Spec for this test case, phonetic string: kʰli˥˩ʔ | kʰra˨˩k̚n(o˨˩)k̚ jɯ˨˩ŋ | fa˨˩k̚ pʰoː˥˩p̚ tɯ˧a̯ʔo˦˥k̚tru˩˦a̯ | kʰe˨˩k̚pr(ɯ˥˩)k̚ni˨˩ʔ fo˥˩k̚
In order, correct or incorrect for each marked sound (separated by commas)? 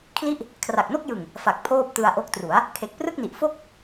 incorrect, correct